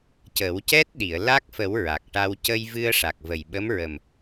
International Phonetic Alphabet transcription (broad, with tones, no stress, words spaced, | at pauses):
cə˨˩˦wcɛ˦˥t̚ ɗi˨˩˨ə̯laː˦˥k̚fə˨˩˦w ɹa˨˩k̚ʈa˧w cə˧jvɨ˧ə̯ ʂa˨˩k̚və˨˩jɓə˧˥mɹə˨˩m